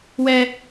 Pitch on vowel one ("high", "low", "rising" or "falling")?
low